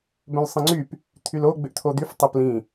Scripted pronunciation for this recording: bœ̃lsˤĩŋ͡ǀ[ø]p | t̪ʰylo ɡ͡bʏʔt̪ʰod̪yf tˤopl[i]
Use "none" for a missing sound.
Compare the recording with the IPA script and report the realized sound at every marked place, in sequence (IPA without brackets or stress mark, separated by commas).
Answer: y, ĩ